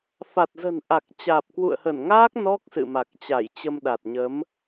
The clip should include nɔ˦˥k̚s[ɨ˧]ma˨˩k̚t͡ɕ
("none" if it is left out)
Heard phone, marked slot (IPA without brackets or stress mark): ɨ̰˧˨